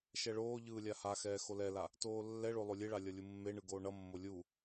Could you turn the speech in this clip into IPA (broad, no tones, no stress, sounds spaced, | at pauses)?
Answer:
ʃ ɛ ɭ oː ʎ ɯː lʲ a h a x ɛː x o l ɛ l a | t oː lː ɛ ɭ o lˠ o lʲ e ɭ a lʲ ʌ lʲ u mː e ɳ ɯ ɡ oː ɳ ʌ mː o lʲ u